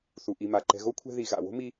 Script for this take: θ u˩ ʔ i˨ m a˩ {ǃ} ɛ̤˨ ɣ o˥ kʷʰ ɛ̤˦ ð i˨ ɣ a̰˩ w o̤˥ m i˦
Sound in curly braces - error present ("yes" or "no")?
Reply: no